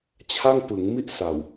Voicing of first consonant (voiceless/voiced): voiceless